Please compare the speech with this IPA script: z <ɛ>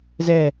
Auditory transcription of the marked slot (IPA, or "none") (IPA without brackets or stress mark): ɛ